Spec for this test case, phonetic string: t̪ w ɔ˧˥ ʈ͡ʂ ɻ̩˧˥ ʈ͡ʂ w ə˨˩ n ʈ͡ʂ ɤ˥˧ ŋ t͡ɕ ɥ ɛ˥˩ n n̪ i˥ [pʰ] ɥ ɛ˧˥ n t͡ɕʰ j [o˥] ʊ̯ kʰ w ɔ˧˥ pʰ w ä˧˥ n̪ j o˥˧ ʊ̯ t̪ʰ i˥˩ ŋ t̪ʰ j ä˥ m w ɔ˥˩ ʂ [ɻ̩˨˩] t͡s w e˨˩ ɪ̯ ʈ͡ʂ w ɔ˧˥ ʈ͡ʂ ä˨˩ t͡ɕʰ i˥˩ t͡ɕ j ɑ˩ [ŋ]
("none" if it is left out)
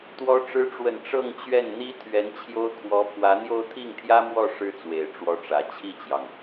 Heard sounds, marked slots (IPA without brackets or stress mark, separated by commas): t̪ʰ, o˥, ɻ̩˥, ŋ